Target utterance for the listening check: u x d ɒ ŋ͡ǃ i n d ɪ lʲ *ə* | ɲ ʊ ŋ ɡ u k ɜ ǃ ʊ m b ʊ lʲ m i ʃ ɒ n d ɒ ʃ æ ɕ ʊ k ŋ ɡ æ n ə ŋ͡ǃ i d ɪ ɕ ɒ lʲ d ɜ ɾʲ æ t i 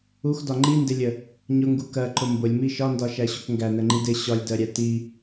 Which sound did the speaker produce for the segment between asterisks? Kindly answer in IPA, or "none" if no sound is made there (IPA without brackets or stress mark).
ə